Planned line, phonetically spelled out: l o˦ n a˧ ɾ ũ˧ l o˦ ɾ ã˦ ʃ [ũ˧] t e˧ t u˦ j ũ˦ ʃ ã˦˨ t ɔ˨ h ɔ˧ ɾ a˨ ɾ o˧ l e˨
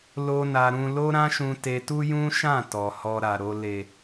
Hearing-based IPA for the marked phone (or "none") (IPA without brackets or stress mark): ũ˧